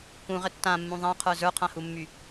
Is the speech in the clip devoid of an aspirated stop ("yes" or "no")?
no